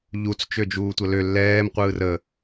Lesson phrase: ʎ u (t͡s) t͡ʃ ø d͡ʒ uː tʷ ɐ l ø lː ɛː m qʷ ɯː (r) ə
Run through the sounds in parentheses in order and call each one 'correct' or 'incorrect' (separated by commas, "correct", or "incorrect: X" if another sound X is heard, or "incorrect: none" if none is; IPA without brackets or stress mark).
correct, correct